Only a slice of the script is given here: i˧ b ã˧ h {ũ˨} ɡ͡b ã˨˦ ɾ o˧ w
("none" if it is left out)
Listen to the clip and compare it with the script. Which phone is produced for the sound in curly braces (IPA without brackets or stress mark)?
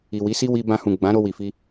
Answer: ũ˨